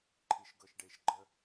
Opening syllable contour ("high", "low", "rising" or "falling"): low